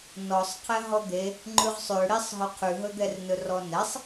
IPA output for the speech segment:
n ɔ sˤ qʰ ɛ ɦ ɔ d̪ e | ŋ͡ǃ ʉ ʁ sˤ ø ɽ i sˤ ɦ ɵ qʰ ʉ ɦ ɵ d̪ ɛ r n ɵ r ɔ n ɛ sˤ

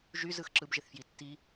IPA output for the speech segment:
ʒ y z ɯ x ǁ ɯ b ʒ e θ f j i tː i

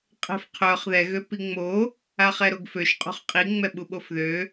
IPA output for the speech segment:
qʼ ɛ̤ f qʰ œ χ ð ɛ ɣ ø p i ŋ͡m o | a χ ɛ ɾ o ɡ f ø ʃ qʼ ṳ χ qʼ i ŋ͡m ɛ ɓ u ɓ o f ð ø

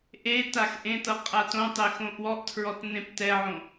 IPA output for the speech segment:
ʔ e t a x ʔ ẽ t ɤ qʼ a t õ tˤ e x õ ʔ w ɔ ʔ tʰ ɹ ɔ t n ẽ p t ɛ ʕ õ

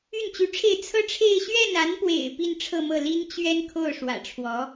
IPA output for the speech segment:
y˥˩ n t͡ɕ y˧˥ ʈ͡ʂʰ e˥˩ ɪ̯ t͡sʰ ɤ˥ ʈ͡ʂʰ e˥˧ ɪ̯ ɕ ɥ ɛ˥˩ n a˧˥ n p w ḛ˨˩ ɪ̯ p i˥˧ n ʈ͡ʂʰ ɤ˥˧ m ɤ˥˩ l i˥ n t͡ɕ ɥ ɛ˥ n kʰ o˥˩ ʊ̯ ʂ w ä̰˨˩ ʈ͡ʂʰ w ɔ˧˥

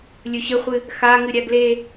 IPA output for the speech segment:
lʲ ɵ ɕ ɘ χʷ ɨ | x a ŋ ɨ ɾʲ a ɡ l e

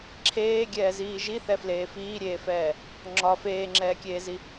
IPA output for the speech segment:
ǁʰ eː ɡʲ ɛː z iː ʒ i θ ɛ f l eː f iː ɾʲ eː f ɛː | ŋ͡ǁ ɒ f eː ŋ͡ǁ ɛː kʲ eː z i

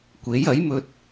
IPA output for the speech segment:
kʷ e˨˥ j ɐ˨˥ j m ɵ˧ t̚

